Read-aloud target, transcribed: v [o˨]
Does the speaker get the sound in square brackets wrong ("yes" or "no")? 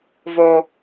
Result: no